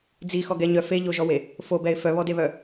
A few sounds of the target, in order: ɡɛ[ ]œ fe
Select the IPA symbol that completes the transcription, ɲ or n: ɲ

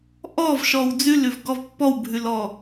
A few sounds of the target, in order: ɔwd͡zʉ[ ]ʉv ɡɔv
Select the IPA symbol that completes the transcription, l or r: l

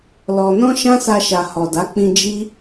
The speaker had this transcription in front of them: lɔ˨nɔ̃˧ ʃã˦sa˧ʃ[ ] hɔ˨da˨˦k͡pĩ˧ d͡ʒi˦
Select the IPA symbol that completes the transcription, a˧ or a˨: a˨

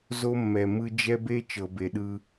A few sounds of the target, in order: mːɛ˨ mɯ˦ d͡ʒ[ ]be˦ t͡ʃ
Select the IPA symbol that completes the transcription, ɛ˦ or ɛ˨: ɛ˦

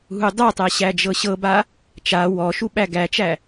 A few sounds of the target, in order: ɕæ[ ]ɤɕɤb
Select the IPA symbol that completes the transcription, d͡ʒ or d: d͡ʒ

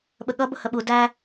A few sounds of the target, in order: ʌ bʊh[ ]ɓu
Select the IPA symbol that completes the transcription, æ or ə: ə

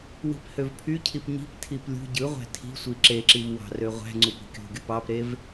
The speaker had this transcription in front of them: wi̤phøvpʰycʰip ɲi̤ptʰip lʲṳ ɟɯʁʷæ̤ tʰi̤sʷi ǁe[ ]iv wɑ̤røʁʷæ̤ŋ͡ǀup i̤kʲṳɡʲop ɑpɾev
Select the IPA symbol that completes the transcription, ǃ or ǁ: ǁ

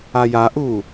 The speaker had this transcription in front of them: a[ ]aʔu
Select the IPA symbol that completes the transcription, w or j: j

